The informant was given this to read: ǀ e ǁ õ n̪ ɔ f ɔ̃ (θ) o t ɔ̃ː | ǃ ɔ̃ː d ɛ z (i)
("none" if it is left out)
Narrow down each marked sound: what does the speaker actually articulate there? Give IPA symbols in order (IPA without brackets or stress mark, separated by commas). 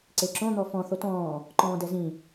θ, ĩ